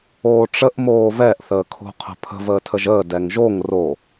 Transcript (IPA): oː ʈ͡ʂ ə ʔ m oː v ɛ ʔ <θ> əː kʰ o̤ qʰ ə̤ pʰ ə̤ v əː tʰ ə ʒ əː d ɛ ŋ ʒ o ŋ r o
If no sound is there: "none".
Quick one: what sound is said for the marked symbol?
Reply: θ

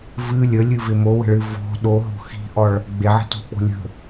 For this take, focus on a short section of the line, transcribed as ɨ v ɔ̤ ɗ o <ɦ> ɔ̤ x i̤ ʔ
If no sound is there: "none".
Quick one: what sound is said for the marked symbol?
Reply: ɦ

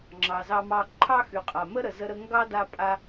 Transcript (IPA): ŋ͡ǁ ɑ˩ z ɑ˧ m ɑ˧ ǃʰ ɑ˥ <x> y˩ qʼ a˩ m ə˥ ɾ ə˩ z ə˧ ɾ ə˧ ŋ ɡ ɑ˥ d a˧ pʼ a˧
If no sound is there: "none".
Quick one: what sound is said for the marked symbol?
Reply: x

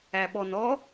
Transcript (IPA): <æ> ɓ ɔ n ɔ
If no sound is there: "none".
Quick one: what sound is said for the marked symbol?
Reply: æ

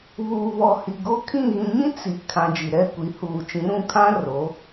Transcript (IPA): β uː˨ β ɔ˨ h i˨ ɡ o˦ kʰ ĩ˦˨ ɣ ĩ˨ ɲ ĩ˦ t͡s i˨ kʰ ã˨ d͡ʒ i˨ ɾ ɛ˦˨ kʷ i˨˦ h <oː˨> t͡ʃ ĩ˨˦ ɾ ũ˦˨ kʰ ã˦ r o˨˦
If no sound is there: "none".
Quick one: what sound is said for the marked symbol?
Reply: uː˨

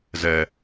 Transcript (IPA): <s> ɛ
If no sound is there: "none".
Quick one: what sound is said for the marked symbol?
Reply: z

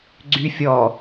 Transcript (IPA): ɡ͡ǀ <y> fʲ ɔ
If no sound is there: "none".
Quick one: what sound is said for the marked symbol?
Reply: y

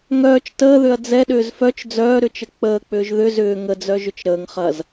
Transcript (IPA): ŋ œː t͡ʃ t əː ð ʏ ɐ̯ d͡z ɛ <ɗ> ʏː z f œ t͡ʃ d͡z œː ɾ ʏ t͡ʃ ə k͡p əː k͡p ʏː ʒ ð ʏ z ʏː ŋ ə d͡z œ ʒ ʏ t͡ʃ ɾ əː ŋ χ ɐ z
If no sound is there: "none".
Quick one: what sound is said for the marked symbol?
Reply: ɗ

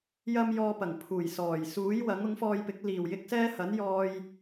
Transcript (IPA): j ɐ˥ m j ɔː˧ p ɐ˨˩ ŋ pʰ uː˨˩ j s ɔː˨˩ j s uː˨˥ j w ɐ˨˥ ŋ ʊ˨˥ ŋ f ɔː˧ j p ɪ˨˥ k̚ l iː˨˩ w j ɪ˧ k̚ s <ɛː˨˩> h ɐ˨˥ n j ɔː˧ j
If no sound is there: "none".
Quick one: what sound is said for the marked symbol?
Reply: ɛː˥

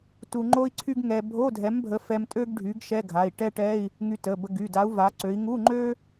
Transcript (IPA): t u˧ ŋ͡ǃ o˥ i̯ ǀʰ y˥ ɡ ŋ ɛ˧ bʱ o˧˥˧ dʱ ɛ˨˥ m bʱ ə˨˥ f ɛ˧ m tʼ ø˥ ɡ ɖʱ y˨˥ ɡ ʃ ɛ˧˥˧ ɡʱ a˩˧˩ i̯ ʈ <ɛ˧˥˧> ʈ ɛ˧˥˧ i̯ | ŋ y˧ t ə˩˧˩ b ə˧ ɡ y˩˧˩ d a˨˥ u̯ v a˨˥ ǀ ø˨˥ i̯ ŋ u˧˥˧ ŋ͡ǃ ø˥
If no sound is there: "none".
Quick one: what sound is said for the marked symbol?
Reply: ɛ˥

